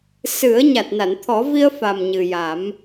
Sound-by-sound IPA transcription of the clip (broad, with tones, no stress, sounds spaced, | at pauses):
s ɨ˨˩˦ ə̯ ɲ a˨˩ t̚ n a˨˩˨ n t̪ʰ ɔ˨˩˦ v i˧ ə̯ f a˨˩ m ɲ ɨ˨˩ j a˨˩˦ m